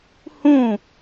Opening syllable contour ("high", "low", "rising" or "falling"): falling